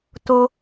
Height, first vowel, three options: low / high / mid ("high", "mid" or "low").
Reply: mid